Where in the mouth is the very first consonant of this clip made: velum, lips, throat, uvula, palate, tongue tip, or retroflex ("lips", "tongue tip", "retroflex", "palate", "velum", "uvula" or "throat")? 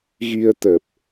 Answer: velum